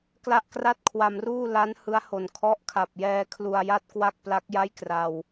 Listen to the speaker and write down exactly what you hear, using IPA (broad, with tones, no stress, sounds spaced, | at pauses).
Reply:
k l a˥˩ ʔ k r a˥˩ t̚ kʰ w a˧ m r uː˥˩ l a˦˥ n h ɯ˦˥ a̯ h o˨˩ n kʰ ɔ˦˥ ʔ kʰ a˨˩ p̚ j ɛː˧ kʰ l u˧ a̯ j a˥˩ t̚ k w a˥˩ k̚ p l a˦˥ k̚ j a˥˩ j k r a˧ w